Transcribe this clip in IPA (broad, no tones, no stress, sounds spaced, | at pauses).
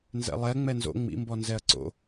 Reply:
n z ɛ̰ lˠ ɛ ŋ͡m ɛ n z o̰ ŋ͡m ḭ m b ɔ n z ɛ ɐ̯ ǀ o̰